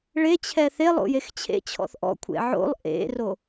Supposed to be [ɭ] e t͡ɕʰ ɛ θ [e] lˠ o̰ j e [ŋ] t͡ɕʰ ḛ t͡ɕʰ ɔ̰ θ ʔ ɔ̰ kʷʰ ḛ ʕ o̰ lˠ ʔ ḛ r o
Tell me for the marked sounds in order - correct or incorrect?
correct, correct, incorrect: x

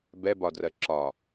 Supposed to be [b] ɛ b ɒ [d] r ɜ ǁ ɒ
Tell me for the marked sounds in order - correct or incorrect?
correct, correct

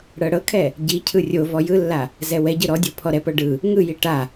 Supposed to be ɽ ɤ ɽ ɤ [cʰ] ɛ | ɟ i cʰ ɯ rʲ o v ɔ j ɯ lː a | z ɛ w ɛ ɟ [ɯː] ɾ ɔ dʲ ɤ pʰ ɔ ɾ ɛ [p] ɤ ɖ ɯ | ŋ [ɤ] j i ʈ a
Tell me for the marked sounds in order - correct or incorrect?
incorrect: kʰ, incorrect: ɯ, correct, incorrect: ɯ

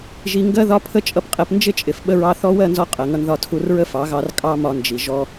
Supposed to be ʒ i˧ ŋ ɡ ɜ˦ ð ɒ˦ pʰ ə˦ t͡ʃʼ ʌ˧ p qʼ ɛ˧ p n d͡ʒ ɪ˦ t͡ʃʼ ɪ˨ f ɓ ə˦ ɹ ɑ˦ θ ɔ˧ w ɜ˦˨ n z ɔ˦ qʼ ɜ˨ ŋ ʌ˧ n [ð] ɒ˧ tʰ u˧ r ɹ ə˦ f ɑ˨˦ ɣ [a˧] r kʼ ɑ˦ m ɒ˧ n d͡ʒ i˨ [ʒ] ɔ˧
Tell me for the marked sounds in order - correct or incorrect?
correct, incorrect: ɑ˧, correct

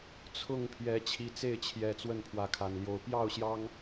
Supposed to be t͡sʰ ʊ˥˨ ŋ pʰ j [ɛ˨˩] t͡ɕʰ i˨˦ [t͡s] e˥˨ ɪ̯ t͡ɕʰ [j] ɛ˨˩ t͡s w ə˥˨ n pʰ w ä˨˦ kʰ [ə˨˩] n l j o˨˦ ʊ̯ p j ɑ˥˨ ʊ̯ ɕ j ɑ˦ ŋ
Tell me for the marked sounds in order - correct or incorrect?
incorrect: ɛ˨˦, correct, correct, incorrect: a˨˩

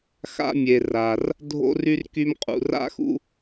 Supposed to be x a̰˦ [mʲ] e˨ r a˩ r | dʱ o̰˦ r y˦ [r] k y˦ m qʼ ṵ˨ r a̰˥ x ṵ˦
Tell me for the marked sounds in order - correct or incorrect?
correct, correct

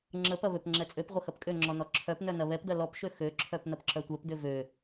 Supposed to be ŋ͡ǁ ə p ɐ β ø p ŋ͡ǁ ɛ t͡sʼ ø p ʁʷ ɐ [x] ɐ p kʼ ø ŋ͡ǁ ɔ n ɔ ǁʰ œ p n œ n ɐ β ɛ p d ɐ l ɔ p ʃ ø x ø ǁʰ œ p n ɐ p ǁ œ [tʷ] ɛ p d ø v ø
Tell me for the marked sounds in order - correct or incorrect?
correct, correct

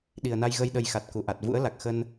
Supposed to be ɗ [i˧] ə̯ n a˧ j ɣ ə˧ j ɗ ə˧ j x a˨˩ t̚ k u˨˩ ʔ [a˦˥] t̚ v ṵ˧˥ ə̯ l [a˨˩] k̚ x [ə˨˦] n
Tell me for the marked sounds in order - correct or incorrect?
incorrect: i˨˩, incorrect: a˨˩, correct, incorrect: ə˧

